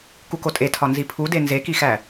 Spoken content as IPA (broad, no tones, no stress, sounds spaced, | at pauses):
k u k o tʼ e tʰ ɒ n z i pʰ u d e n z e k i x æ